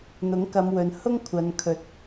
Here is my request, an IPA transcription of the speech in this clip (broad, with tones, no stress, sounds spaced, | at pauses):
n̪ ʊ˨˥ ŋ k ɐ˨˧ m w ɵ˨ n h ʊ˥ ŋ kʷʰ ɐ˨ n kʰ ɵ˨˥ t̚